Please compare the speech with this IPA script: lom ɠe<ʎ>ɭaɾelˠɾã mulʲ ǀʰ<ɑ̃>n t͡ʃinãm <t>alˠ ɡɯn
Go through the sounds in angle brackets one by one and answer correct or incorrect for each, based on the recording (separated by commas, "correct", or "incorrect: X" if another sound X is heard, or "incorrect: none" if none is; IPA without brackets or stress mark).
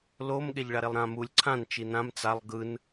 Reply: correct, incorrect: ã, incorrect: t͡s